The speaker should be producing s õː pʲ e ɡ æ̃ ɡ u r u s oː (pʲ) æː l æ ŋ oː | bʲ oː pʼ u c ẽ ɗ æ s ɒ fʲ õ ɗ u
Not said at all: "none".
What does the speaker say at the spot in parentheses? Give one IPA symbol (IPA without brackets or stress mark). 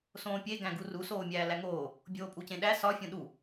mʲ